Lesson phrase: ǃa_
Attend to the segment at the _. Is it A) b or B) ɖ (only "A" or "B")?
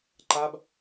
A